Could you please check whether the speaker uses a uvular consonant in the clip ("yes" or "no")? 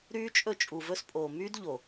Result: no